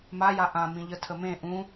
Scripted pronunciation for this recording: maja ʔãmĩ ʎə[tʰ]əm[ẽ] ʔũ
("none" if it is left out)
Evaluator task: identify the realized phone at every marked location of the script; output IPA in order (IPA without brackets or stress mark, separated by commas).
tʰ, ẽ